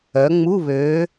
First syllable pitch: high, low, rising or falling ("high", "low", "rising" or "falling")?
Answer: rising